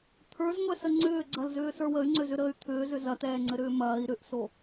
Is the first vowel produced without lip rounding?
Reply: yes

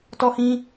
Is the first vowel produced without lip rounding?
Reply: no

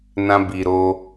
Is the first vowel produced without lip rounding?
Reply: yes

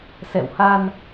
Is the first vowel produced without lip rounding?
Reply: yes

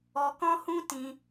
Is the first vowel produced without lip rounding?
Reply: no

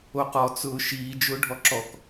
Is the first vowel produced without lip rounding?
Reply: no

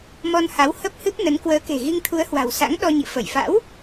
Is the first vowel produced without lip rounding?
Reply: no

